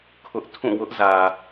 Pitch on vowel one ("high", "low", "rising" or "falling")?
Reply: high